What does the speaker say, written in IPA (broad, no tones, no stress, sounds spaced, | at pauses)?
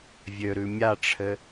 vʲ ø ɾ ʉ mʲ a ʈ͡ʂʰ ɘ